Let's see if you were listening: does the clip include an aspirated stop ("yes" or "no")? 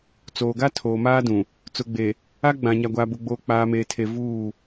yes